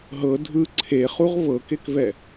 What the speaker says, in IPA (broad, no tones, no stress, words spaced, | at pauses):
ɦɤ dʱɯ ǀʰeχuʁ vɤkekvɛ